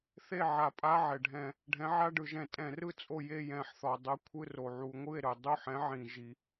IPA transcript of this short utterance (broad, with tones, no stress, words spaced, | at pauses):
θe˥˨ʕa˧˩˧pʼa˧˥˧ ʕɛ˩ɖʱɛ̃˧˩˧ | ɖʱɛ̃˨˥ʕa˧˥˧ɖɯ˧˩˧ʒɛ̃˧˩˧ tʼɛ̃˧˩˧rɯ˥˨ t͡sʼo˥˨ je˥˨jɛ̃˧˩˧ħθɔ˩ dˤɯ˨˥ kʷʰɯ˧˥˧ro˩ʕu˧˩˧ ŋʷɯ˥˨e̯ɾɯ˩ dˤu˥˨ħɛ̃˨˥ʕĩ˩ ʒi˩